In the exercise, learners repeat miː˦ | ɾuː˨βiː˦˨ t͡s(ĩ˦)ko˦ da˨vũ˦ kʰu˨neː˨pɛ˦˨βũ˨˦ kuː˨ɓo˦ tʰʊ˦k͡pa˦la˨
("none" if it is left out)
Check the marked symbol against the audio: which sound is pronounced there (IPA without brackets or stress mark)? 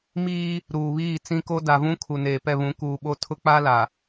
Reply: ĩ˦